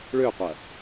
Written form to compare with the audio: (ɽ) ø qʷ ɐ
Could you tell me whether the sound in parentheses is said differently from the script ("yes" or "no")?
yes